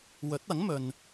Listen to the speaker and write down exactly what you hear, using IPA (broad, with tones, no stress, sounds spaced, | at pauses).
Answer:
w ɵ˨˥ t̚ ɐ˨˥ ŋ m ɵ˨ n